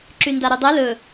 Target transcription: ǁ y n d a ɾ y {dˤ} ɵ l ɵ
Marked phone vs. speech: correct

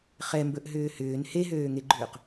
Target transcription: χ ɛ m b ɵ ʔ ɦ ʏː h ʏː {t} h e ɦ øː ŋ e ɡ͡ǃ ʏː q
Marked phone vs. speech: incorrect: n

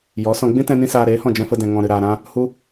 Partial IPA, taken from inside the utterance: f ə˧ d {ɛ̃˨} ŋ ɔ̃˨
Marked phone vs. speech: correct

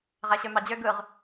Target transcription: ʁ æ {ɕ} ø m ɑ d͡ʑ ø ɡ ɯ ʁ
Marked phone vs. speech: correct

